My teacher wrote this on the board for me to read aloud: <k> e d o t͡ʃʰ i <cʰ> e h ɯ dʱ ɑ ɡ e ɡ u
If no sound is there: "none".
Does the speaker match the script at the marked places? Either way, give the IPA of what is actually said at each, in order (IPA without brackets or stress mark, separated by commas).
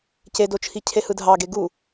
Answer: c, cʰ